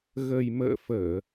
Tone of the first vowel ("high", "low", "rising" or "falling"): low